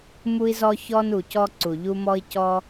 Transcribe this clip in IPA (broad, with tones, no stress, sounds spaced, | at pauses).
m u˦ i̯ z ɔ˦ ç ɔ˦ n u˨ c ɔ˥ ǀ u˨ ʎ u˦ m ɔ˦ i̯ c ɔ˦